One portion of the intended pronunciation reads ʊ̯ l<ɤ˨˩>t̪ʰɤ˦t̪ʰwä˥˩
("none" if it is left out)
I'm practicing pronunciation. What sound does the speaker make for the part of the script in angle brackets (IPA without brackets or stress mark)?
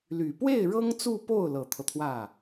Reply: ɤ˨˩